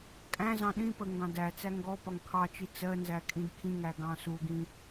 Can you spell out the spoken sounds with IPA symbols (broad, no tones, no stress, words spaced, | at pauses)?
kʼæ̃zɑ̃ ɗĩpə ŋɡɑ̃dæt͡sæ ŋɡɔpɒŋ kʰɑt͡ʃi t͡sɜnzæ kʼĩdkʰĩŋæ ɡɑ̃suɡĩ